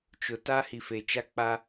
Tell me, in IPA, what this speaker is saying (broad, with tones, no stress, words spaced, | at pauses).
t͡ʃʊ˨ta˦ hi˨fe˨t͡ʃa˦ k͡pa˦